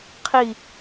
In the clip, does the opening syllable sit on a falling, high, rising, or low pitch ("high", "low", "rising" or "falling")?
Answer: falling